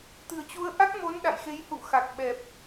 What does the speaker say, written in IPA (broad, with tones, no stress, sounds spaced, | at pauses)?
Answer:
t̪ ɨ̤˨˩ ə̯ t͡ɕ u˨˦ ə̯ ʔ a˦˥ k̚ m o˨˦ n ɗ a̰˧˨ j x e˨˦ j h ṵ˧˨ x a˨˩ k̚ ɓ ɛ˨˩ p̚